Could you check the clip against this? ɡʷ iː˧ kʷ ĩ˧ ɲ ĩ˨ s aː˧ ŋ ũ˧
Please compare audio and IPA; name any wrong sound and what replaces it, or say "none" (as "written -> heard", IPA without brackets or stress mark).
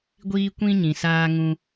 none